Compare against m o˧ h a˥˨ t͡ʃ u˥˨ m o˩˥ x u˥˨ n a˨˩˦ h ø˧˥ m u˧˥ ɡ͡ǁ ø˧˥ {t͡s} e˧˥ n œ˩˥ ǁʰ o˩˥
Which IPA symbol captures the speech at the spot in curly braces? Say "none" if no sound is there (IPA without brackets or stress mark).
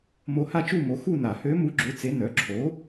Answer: t͡s